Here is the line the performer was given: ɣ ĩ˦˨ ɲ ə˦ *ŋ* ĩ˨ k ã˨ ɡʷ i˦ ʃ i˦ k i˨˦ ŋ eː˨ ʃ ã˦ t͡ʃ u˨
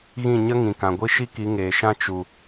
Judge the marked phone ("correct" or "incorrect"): correct